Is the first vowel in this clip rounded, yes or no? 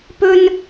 yes